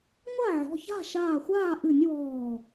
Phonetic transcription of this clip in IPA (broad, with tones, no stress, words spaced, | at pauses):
ŋʷa˥˨ʕɔ̤˩˧˩ça̤˥˨ ʃaː˧˩xʷaː˥˨ʔɨ˧˩˧nʲ wɔː˧˩